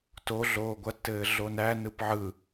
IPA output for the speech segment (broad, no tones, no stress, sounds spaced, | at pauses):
t o ɮ oː ɡʷ ɐ tː ɘː ɮ o n æ n ɯ p ʕ ɯ